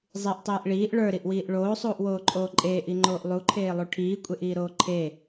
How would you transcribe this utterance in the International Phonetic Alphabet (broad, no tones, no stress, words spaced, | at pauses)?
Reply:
zˤiʔtˤiːʔ ɭiːʔ ɭə˞ɾiʔwiːʔ ɭoːsˤuːʔwoːǃʼoː ǃʼeːʔiŋ͡ǃoːʔ lˠuǃʰeːlˠu ʈʰiːkʷʼeʔiːɾoː ǃʰe